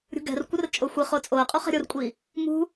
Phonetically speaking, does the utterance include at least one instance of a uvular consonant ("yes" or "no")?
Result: yes